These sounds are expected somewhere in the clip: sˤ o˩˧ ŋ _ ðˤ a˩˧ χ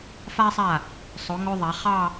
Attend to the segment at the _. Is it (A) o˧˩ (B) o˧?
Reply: B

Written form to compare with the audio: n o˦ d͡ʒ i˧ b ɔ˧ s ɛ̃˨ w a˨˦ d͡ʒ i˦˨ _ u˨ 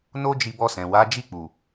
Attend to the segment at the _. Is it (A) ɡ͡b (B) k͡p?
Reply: B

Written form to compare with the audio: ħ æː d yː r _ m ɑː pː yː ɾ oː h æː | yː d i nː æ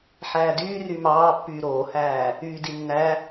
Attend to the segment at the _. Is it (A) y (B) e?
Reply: A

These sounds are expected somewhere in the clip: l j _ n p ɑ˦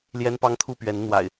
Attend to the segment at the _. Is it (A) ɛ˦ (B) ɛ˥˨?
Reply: A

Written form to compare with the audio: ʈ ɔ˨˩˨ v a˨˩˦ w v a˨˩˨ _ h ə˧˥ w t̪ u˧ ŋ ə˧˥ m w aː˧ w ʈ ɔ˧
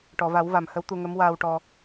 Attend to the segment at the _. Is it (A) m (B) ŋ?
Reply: A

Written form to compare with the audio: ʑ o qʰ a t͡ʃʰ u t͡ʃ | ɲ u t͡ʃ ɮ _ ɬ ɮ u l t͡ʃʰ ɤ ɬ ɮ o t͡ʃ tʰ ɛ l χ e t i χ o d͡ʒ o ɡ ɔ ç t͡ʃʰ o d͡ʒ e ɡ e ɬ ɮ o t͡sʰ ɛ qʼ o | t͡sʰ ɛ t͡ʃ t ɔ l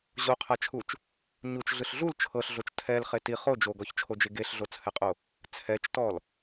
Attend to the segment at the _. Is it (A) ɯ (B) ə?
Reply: A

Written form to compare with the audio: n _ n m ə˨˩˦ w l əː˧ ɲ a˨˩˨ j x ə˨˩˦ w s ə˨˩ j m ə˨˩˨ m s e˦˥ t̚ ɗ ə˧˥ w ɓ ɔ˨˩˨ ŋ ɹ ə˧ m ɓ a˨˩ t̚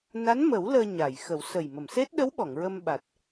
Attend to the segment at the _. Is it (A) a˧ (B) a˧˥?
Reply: B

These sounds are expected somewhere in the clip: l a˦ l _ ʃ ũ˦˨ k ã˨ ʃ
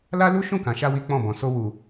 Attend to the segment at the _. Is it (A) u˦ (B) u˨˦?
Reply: A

